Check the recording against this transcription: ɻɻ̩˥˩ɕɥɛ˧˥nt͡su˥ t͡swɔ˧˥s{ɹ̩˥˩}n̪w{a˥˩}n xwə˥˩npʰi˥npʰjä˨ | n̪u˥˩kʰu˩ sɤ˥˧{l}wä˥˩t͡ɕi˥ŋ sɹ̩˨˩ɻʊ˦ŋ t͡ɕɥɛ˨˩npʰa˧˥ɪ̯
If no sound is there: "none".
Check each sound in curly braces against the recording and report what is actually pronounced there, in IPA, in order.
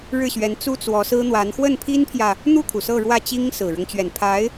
ɹ̩˥, a˧˥, ɻ

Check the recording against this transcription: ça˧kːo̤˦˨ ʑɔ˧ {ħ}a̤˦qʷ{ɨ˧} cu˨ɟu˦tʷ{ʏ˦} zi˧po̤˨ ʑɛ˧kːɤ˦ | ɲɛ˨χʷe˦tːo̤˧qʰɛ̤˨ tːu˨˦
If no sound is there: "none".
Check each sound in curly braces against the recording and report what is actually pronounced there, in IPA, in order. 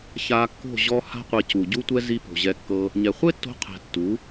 h, e˧, ɛ˦

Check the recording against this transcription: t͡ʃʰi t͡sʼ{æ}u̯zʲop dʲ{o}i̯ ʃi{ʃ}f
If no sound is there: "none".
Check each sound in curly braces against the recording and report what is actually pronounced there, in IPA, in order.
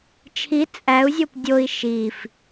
æ, o, none

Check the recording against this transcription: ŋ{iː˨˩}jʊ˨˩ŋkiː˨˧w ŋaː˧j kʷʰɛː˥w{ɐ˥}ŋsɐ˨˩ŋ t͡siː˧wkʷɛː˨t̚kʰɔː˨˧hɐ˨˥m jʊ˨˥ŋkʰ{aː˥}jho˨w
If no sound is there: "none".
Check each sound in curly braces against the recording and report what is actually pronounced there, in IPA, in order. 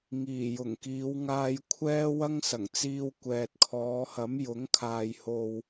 iː˨˩, ɐ˥, aː˨

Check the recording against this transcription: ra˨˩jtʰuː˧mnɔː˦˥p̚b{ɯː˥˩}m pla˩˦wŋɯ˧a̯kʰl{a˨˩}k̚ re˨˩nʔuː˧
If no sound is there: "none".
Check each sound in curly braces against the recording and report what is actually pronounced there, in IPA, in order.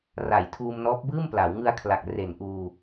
ɯː˥˩, a˨˩

